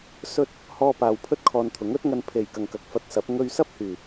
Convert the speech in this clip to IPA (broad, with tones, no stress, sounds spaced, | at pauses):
s ɵ˧ t̚ | h ɔː˧ p aː˨ w pʰ ɵ˥ t̚ kʰ ɔː˧ n t̪ʰ ʊ˨˥ ŋ ɵ˥ t̚ ŋ ɐ˧ n pʰ e˨ j k ɐ˨ ŋ k ɐ˨ k̚ f ɐ˧ t̚ s ɐ˨˥ p̚ ŋ ɵ˧ ɥ s ɐ˥ p̚ h yː˨˩